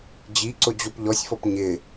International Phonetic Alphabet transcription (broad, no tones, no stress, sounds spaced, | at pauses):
d͡ʑ i ǀ ʊ d͡ʑ o p ʎ ɔ sʲ f ɔ p ɲ ɪ